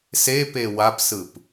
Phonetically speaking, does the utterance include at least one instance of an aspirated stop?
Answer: no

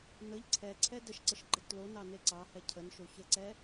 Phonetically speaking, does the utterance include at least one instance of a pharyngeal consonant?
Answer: no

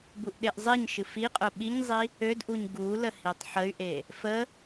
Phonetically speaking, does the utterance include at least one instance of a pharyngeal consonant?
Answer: yes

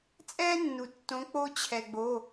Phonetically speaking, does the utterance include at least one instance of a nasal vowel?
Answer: yes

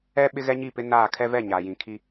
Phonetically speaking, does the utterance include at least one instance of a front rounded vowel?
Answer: no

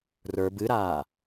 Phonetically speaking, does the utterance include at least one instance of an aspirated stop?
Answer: no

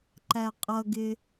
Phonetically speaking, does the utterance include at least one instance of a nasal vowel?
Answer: no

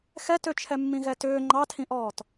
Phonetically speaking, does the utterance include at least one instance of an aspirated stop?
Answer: yes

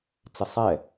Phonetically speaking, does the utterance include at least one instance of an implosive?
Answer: no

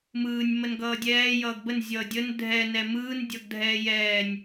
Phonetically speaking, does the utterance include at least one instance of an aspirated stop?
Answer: no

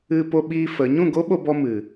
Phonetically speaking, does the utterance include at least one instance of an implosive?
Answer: yes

